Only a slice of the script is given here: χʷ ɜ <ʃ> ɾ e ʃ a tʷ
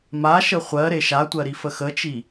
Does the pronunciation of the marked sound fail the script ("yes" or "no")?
yes